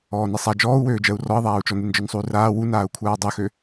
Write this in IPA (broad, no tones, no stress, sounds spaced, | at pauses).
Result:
ɔː n e sˤ a d͡ʒ ɔː u̯ w øː d͡ʒ ɜ u̯ r ɔ i̯ ðˤ aː u̯ t͡ʃ ɔ n e n d͡ʒ ɔ n sˤ u y̯ r aː w u n aː u̯ kʷʰ aː dˤ ø x ø